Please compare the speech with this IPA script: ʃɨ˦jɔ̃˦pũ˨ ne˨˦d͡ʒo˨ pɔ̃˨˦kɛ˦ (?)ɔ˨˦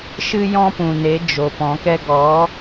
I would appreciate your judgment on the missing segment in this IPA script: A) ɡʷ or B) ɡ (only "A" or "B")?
B